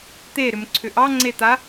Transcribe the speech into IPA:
t̪ e ɾ ʏ m ǀʰ ʏ ʔ ɑ ŋ͡ǀ e t̪ a

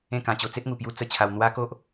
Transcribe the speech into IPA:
ẽ˥˧ k ã˧ t͡ɕ o˧ t͡s e˦ t̚ ŋ u˨˩ p j u˧ t͡s ə˥˧ t͡ɕʰ a˧ w n̪ w a˦ k o˦ ʔ

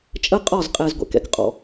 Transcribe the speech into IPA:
t͡ʃʼ ə˦ qʼ ɒ˦˨ z qʼ ɛ˨ z ɡʷ ɛ̰˨ k ɛ̰˨ k qʼ ɔ̰˨

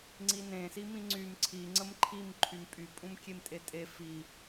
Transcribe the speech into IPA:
ŋ͡ǀ i n ẽ s i m ĩ ŋ͡ǀ y m ǀʰ i ŋ͡ǀ ə m ǃʰ i m ǃʰ y m pʼ y pʼ ũ m kʲ e m tʼ e tʼ e f i

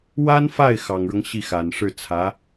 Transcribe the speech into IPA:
w a˥ n f a˥˩ ɪ̯ x ɑ˨˩ ŋ ɻ ɤ˦ ŋ ɕ i˥˩ x a˨˩ n ʂ ɻ̩˥˩ t͡sʰ ä˧˥

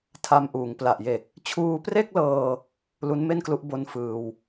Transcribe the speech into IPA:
tʰ a˧ m ʔ uː˩˦ ŋ p l a˨˩ ʔ j e˨˩ k̚ | t͡ɕʰ uː˧ p r e˥˩ k̚ l ɤː˧ | l u˦˥ n m e˥˩ n k l u˦˥ ʔ b o˦˥ n f ɯː˧ w

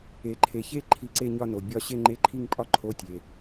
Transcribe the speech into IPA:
e˩ ǃʰ e˩ ç e˥˧ ǃʰ i˧˥˧ ǀ e˥˧ ɲ ɒ˥˧ n o˩ bʲ ɒ˥˧ ɕ e˥˧ ŋ͡ǃ e˧˥˧ ǃʰ i˥˧ ŋ pʼ ɒ˥˧ ǃʰ o˧˥˧ tʲ e˩

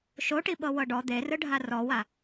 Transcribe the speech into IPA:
ʃ o ʈ i ɓ ɤ w ɤ ɖ ɔ d̪ e r ɯ ɖʱ a r ɔ w a

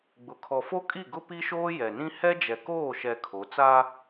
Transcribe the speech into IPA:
ɡ͡b ʊ˨ kʰ ɔ˨ f o˦ kʼ i˦˨ ɡ ʊ˦ p i˦ ʃ oː˦ j ɛ˨ n ĩ˦ h ɛ˦ d͡ʒ ɛ˨ k oː˦˨ ʃ ɛ˨ kʰ o˨˦ t͡s a˦

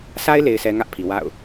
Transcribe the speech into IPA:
sʰ a˦ ɪ̯ l e˨ ɪ̯ sʰ ɛ˨ ŋ ä˦ ʔ pʰ i˨ w a̰˦˨ ʊ̯

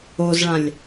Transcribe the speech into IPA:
o z ɭ ã lʲ

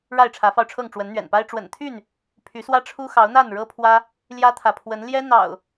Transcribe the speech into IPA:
ɻ a˥˨ ɪ̯ ʈ͡ʂʰ ä˨˦ f ɑ˧ ʊ̯ ʈ͡ʂʰ ɤ˥˨ ŋ ʈ͡ʂ w ə˨˦ n n̪ ɥ ɛ̰˨˩ n p a˦ ɪ̯ ʈ͡ʂ w ə̰˨˩ n t̪ʰ y˥˨ n | pʰ y˨˦ s w ä˦ ʈ͡ʂʰ u˦ x ɑ˨˦ ʊ̯ n̪ a˥˨ n ɻ ɤ˦ pʰ w ä˦ | l j ä˦ t̪ʰ ä˨ pʰ w ə˨˦ n l j ɛ˦ n̪ ɑ̰˨˩ ʊ̯

